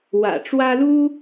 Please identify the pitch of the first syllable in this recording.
low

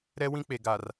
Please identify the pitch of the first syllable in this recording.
high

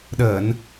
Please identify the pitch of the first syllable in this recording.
low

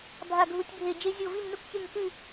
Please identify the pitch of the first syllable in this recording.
falling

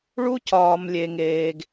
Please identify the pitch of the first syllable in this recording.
high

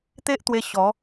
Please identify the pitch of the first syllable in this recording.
high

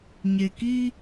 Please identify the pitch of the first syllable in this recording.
low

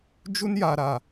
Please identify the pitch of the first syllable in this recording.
high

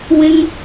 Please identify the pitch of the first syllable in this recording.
high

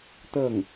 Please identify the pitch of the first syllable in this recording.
falling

